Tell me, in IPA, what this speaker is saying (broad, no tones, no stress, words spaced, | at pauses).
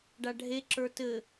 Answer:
ɖaɖʱe ǁə˞tɘ